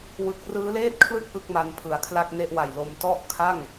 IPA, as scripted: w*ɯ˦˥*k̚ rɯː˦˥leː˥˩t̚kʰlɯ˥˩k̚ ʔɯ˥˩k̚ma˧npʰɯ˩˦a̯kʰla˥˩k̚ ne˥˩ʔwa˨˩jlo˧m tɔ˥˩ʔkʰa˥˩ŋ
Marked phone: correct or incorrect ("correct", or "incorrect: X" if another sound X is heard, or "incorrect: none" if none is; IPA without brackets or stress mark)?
correct